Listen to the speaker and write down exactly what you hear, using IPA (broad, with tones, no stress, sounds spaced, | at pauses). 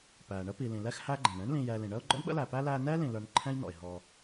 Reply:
p æː˩ ɳ ə˦ p i˩ l ĩ˩ l ɛ˦ x h æ˦ ɡ͡ǃ ɛ̃˩ ɳ ɛ̃˥ ɳ l ĩ˨ j ɛː˨ l ĩ˩ ɳ əː˥ ʊ̯ ɡ͡ǃ ɔ̰˥ ɳ ɓ ə̰˥ l æ˨ p æ˥ l æː˦ n ɛː˥ l ĩ˨ l ə˞˦ n ǃʰ ɛ̃˥ j n ɔ̰˩ ɪ̯ ɦ ɔ˨